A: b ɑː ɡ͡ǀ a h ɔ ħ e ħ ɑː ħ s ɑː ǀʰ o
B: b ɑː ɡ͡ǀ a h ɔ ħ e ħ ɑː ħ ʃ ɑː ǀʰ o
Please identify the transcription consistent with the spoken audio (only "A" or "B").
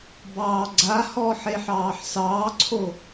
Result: A